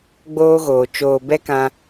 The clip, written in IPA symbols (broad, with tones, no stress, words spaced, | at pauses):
ɡ͡boː˦ɣoː˨ t͡ʃoː˨ bɛ˦kã˧